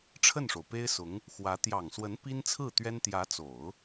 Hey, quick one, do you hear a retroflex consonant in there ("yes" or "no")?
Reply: yes